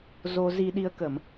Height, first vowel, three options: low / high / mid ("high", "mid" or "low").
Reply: mid